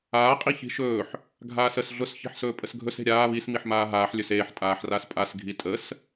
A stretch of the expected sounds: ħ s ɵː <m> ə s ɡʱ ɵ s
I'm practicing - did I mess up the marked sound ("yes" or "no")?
yes